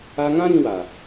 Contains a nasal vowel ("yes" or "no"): yes